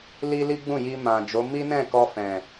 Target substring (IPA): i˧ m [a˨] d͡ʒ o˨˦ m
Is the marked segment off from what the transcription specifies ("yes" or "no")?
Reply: yes